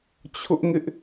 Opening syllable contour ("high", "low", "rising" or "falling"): high